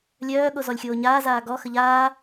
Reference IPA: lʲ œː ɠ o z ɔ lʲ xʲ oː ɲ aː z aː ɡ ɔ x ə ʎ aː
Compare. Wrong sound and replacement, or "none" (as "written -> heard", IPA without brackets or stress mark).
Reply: none